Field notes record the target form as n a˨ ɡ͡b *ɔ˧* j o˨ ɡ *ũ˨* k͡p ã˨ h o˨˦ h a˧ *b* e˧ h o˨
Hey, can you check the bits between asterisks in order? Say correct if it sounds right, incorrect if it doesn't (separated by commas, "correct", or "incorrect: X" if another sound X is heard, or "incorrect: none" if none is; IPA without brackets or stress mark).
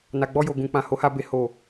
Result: correct, correct, correct